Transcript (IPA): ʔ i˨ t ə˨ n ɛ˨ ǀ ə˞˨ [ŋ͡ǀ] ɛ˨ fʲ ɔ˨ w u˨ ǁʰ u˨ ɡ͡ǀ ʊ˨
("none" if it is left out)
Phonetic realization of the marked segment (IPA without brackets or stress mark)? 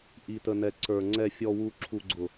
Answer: ŋ͡ǀ